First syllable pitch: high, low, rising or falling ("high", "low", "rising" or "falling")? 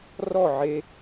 falling